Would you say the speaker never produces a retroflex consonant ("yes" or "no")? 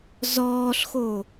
yes